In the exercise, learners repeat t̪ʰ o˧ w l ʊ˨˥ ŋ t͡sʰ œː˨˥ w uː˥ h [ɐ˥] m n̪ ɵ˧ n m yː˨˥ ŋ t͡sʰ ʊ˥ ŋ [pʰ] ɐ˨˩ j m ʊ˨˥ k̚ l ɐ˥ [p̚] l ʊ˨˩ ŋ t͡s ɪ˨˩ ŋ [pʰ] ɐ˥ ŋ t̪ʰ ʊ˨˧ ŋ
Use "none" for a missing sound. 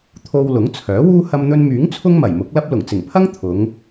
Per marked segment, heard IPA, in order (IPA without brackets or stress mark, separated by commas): ɐ˧, m, p̚, pʰ